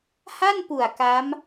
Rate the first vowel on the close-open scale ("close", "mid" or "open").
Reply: open